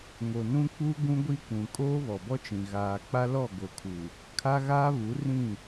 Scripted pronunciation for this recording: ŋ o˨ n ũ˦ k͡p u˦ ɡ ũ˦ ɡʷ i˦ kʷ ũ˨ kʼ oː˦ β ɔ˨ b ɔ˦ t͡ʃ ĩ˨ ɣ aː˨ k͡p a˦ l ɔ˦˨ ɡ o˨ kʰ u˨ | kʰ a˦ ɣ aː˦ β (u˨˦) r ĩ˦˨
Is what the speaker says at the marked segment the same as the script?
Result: yes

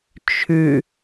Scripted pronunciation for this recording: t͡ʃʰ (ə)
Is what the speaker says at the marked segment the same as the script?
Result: no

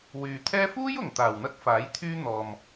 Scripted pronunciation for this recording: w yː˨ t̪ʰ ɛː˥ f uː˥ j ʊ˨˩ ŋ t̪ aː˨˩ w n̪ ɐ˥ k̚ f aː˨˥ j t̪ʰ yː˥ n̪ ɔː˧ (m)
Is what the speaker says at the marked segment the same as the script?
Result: yes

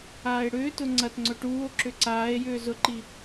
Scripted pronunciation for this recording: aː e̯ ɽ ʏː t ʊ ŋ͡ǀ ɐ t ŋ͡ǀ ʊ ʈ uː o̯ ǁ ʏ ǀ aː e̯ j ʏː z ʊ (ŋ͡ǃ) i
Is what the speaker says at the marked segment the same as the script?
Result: no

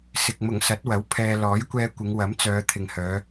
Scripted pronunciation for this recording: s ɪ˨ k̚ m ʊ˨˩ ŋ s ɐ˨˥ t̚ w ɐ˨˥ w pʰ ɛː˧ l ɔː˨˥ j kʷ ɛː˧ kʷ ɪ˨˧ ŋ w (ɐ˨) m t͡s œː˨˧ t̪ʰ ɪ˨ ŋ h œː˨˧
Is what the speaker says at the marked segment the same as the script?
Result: no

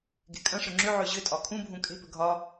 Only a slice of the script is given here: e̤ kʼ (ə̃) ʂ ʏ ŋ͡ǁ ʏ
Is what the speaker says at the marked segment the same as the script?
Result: yes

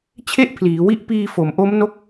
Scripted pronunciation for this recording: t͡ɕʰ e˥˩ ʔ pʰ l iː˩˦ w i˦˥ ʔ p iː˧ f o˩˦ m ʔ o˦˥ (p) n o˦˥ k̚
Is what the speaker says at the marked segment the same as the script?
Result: no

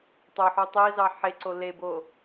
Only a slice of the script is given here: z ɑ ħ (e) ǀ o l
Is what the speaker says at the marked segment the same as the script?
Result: yes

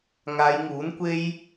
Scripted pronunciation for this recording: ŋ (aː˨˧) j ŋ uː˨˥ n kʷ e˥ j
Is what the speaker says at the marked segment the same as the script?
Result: yes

